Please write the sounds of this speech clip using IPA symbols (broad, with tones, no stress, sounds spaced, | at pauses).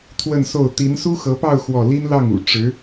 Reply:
t̪ʰ w ə˥˧ n s o˥˩ ʊ̯ t̪ i˧˥ n s u˥ x ɤ˧˥ p ɑ˥˧ ʊ̯ x w ɔ˥˩ l i˥ n l ɑ˥˩ ŋ ṵ˨˩ ʈ͡ʂ ɻ̩˧˥